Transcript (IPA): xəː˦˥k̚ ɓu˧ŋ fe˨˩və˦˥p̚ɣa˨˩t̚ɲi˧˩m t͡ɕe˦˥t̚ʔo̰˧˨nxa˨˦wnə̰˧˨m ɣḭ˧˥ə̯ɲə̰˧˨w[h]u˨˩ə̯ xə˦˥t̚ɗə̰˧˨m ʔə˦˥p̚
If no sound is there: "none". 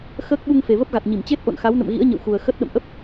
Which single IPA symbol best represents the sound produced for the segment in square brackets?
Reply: x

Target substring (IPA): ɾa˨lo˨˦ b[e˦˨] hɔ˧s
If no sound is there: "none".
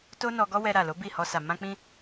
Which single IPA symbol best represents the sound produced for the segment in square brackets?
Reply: i˦˨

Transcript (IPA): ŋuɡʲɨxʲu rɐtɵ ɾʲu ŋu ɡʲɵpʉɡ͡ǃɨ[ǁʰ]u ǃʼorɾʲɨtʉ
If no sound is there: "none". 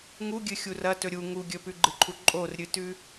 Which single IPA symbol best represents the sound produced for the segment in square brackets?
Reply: ǃʰ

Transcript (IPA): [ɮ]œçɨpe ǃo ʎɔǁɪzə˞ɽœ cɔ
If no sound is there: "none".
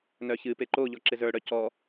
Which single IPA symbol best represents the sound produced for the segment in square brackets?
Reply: n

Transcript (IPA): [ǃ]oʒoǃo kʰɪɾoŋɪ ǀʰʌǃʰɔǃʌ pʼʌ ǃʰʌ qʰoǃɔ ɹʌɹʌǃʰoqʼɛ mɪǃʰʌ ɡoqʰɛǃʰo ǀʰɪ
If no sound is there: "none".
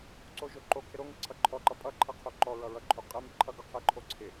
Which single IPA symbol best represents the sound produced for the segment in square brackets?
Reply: ǀ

